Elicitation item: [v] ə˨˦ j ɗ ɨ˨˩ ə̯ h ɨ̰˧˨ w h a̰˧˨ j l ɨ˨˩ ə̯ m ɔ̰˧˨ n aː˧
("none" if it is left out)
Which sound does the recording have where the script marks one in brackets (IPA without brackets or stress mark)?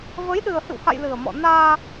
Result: v